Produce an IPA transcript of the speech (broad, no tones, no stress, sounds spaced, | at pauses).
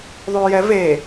ðˤ yː j ɛ v e